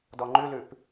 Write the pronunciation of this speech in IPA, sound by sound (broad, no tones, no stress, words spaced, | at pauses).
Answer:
dɔŋ͡ǃʉlʉp